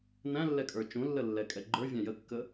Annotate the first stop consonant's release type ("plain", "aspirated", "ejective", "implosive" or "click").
ejective